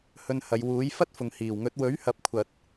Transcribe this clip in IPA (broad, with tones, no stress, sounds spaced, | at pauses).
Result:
h ɵ˧ n h ɐ˨˧ j w uː˨˥ j f ɐ˥ t̚ f ʊ˨ ŋ h iː˨˩ w ŋ ɵ˨˥ t̚ w ɵ˨˥ ɥ h ɐ˨ p̚ kʷʰ ɐ˨ t̚